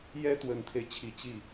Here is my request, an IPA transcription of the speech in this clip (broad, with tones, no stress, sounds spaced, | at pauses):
j ɛ˥ t̪ w ə˨˩ n t̪ʰ e˦ ɪ̯ t͡ɕʰ i˧˥ t͡ɕ i˥˩